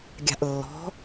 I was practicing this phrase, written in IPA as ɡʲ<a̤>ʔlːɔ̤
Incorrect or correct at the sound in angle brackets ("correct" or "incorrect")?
correct